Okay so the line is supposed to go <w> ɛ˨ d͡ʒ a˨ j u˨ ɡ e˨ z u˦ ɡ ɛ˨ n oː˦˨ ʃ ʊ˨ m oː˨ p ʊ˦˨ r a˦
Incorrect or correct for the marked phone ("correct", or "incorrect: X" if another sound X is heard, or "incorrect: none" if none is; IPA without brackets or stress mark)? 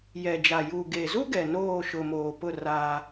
incorrect: j